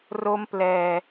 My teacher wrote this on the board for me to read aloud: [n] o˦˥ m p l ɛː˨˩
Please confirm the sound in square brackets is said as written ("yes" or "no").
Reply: no